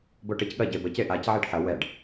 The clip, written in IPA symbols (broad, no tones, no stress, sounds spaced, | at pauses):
b o ʈ e c ɠ ɐ ɟ e b ə c e ʔ a c ʕ ɛ ɖ ħ ɐ w ɛ ɖ